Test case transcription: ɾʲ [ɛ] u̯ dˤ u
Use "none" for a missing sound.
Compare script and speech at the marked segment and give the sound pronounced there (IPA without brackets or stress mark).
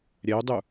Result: ɛ